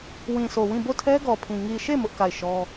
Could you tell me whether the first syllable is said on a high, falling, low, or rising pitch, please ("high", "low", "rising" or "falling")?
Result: low